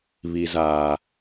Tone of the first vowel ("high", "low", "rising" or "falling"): low